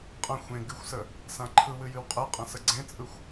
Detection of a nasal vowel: present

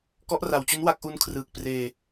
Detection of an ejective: absent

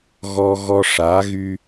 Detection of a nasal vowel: absent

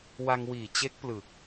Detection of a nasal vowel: absent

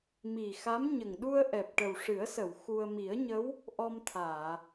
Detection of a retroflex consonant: present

